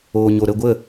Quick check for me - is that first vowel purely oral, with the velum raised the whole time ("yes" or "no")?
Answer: yes